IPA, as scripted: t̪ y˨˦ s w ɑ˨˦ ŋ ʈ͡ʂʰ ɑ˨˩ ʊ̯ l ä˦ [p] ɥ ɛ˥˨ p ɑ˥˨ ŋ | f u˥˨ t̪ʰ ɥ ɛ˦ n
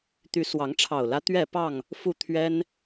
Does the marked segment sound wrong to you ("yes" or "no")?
yes